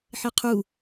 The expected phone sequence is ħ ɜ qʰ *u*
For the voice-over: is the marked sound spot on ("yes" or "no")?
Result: yes